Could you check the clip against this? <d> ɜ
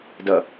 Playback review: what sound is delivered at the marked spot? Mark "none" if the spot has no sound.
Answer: d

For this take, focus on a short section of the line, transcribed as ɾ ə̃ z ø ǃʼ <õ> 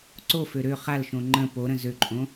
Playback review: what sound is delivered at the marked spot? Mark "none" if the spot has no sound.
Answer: õ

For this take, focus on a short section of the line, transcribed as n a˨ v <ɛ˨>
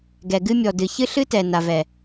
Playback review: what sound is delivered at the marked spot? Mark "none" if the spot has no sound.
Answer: ɛ˨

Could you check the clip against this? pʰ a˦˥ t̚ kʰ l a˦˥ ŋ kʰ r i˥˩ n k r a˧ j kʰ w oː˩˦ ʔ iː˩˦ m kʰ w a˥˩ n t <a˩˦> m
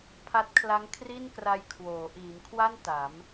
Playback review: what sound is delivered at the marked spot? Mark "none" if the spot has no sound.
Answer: a˩˦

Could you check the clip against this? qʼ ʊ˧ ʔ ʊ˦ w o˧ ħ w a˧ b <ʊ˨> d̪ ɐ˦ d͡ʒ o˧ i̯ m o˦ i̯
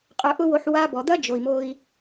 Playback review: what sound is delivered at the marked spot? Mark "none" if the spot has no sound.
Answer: ɔ˨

